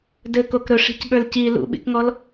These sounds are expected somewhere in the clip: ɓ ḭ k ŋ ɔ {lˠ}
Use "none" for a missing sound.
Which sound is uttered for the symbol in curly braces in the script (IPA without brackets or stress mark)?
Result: l